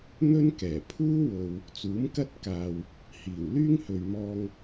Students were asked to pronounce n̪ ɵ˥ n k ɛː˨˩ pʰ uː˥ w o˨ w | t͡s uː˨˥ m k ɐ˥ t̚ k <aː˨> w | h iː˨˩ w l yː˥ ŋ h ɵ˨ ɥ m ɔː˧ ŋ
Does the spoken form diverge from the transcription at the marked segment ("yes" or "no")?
no